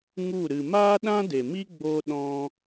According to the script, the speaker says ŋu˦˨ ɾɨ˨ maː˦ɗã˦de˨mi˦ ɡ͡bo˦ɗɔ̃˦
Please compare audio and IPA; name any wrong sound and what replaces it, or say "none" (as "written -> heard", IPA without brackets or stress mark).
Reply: none